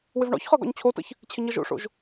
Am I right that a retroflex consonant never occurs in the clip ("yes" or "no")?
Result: no